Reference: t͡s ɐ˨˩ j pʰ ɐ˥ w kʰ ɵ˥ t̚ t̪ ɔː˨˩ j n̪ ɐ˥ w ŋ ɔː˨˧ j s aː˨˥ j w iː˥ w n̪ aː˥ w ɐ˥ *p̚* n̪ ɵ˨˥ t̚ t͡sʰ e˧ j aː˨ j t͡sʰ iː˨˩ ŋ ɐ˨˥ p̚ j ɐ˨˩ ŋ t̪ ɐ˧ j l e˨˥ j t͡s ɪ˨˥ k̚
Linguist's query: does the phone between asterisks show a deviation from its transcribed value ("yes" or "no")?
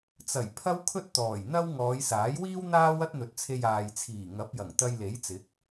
yes